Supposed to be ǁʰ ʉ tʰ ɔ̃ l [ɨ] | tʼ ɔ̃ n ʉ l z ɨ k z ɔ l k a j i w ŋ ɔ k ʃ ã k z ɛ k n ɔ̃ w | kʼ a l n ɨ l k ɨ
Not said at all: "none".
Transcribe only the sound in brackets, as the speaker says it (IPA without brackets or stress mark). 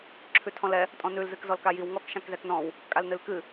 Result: ɛ